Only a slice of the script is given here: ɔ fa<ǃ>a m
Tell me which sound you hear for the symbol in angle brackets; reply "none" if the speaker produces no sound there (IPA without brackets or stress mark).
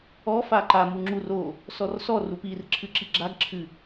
ǃ